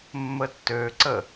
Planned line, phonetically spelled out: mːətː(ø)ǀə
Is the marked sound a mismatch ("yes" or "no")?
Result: no